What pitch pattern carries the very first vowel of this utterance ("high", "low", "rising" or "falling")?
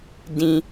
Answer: low